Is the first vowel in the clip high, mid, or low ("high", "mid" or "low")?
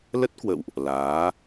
mid